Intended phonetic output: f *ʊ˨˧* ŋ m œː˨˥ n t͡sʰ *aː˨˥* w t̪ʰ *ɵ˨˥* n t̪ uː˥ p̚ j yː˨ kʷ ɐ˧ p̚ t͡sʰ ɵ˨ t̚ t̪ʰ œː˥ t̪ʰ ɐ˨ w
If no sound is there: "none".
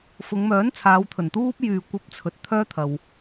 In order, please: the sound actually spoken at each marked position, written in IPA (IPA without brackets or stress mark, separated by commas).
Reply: ʊ˨˧, aː˨˧, ɵ˨˩